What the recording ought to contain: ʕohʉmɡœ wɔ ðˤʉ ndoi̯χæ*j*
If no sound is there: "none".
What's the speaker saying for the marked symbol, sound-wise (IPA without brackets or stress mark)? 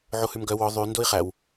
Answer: w